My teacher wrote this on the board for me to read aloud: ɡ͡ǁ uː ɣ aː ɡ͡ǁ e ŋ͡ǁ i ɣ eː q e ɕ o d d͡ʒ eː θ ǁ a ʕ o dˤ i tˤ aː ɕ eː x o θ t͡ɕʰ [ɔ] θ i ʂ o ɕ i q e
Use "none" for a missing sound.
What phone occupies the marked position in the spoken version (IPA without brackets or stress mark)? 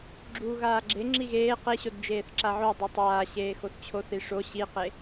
o